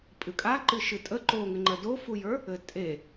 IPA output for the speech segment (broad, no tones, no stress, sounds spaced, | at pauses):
pʼ ɨ kʼ a ǃ ɨ ʃ ɨ tʼ ə ǃ o ŋ ɘ ŋ͡ǃ ə d o f u j ə˞ | ɘ tʼ e